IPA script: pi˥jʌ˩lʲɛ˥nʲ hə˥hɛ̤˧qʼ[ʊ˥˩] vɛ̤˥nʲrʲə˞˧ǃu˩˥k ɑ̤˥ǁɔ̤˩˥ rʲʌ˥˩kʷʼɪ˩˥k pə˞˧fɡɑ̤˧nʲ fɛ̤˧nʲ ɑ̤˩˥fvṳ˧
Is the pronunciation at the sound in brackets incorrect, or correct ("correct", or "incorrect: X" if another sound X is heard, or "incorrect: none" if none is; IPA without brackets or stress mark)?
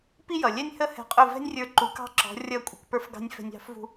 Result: correct